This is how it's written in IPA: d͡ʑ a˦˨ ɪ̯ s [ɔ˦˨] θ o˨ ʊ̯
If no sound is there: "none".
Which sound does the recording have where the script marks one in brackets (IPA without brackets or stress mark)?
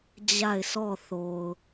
ɔ˦˨